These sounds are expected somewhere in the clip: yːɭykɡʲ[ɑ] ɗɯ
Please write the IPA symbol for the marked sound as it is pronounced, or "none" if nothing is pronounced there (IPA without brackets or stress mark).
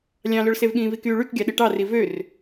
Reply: ɑ